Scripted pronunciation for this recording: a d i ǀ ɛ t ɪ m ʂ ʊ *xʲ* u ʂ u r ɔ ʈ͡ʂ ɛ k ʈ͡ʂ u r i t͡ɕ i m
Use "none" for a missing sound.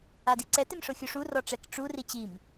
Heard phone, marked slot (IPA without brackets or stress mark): xʲ